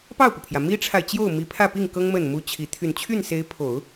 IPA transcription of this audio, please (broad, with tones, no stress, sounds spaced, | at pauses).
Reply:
p ɑ˥˩ ʊ̯ p u˩ pʰ j ä˩ m i˥ ʈ͡ʂʰ a˨ ɪ̯ t͡ɕ j o˥˩ ʊ̯ m i˧˥ pʰ ä˥˧ p i˥˩ ŋ k ɤ˥ ŋ m ə˥˩ n m u˥ t͡ɕʰ i˧˥ t̪ʰ y˨˩ n t͡ɕʰ y˥˩ n s e˧˥ ɪ̯ pʰ o˨˩˦ ʊ̯